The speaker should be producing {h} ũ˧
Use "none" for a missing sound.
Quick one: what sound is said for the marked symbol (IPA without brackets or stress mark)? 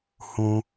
h